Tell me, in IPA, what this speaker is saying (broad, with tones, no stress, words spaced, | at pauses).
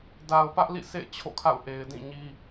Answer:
da˨ʊ̯ pä˦ʔlḭ˦˨sḛ˦˨ɪ̯ t͡ɕʰo̰˦˨kʰa̰˦˨ʊ̯ ʔe˨ɪ̯ dĩ˦˨ɲi˦